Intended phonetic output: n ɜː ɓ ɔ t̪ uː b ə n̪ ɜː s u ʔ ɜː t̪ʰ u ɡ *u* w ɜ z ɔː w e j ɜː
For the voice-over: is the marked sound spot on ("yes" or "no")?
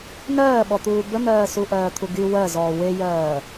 no